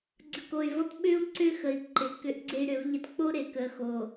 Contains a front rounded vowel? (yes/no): yes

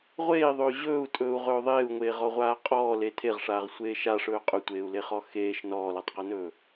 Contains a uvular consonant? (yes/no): yes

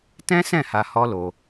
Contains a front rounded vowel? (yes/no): no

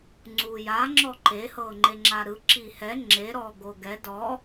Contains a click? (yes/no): yes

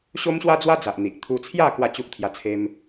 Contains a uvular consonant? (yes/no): no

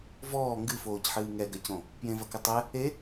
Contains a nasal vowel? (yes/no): yes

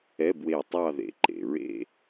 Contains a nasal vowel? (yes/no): no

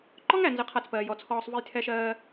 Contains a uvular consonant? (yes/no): yes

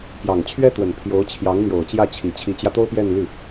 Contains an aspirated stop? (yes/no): yes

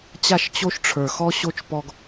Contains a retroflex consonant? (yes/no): yes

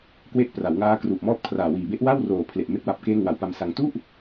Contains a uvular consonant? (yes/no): no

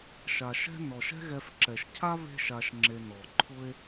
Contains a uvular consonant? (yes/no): no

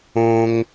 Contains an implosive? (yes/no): no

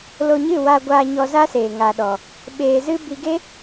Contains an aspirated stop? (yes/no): no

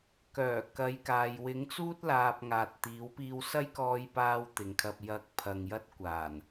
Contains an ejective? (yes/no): no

